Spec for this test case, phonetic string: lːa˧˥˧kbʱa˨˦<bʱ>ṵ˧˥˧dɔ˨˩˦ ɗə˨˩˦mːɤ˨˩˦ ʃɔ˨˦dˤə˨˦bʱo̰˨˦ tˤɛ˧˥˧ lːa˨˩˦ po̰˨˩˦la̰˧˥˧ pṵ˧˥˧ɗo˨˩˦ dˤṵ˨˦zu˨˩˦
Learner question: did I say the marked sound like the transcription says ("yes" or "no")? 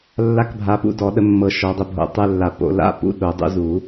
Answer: no